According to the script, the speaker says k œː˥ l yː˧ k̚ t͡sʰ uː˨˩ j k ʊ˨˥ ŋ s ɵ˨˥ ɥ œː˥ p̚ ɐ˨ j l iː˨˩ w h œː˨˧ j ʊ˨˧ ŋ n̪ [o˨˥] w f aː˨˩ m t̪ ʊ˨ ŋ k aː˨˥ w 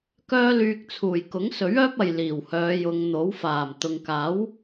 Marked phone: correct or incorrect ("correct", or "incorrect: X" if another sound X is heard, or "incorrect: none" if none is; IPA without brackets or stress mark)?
correct